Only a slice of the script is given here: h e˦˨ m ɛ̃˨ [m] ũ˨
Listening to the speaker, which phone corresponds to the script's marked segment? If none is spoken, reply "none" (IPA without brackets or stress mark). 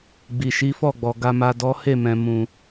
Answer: m